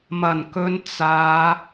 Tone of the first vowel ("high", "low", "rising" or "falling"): low